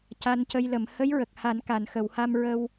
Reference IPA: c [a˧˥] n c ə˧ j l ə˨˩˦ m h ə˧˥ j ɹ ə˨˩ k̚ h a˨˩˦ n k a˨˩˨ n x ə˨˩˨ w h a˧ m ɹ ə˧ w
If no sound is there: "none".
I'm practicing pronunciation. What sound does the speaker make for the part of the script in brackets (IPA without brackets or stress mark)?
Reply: a˧